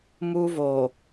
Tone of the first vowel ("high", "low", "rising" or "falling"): high